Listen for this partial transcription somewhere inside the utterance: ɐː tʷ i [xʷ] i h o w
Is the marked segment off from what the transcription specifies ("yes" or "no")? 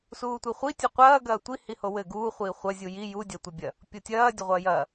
yes